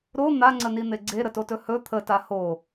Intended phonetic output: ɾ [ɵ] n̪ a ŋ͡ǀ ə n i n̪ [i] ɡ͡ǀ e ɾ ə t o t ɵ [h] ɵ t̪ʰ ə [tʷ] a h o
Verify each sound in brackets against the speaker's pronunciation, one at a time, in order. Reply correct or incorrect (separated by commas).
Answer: incorrect, incorrect, correct, incorrect